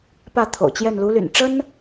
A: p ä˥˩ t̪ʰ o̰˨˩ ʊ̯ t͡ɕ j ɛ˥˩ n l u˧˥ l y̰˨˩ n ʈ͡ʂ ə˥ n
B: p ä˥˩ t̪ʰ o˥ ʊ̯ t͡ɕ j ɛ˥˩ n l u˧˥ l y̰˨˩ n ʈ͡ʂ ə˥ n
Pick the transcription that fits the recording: A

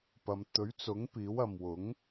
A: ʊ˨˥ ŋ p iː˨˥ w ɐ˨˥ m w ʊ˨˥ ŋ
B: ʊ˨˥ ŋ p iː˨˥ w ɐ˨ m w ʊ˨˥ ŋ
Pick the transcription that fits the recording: B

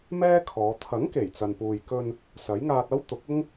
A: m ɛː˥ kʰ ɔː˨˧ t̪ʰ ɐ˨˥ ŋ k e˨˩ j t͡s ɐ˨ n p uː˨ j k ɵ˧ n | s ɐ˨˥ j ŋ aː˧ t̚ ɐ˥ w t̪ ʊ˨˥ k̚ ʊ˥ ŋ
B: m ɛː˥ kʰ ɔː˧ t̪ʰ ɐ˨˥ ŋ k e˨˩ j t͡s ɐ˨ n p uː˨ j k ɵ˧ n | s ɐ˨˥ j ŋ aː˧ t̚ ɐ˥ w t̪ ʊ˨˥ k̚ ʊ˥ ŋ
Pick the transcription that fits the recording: A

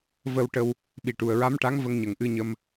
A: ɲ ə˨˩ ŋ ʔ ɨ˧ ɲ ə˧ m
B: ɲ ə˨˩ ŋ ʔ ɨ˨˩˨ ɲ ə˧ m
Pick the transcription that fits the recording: A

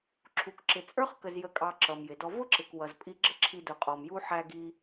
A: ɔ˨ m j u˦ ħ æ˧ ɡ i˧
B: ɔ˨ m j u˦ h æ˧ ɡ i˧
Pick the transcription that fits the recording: A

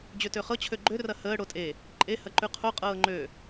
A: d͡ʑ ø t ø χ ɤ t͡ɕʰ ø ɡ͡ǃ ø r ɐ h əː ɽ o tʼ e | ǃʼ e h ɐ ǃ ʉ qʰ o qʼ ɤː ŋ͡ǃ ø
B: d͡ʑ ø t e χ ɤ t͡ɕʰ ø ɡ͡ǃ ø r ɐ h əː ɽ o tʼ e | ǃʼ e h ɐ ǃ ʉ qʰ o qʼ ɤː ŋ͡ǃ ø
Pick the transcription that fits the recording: A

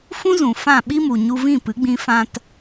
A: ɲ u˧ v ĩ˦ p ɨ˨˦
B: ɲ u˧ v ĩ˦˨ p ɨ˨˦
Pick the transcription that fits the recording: B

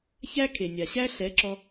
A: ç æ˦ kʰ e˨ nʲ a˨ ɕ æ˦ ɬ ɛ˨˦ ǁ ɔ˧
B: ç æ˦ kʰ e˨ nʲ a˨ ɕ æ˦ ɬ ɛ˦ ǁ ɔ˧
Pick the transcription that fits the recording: A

